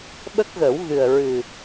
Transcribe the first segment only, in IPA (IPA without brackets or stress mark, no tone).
ɓ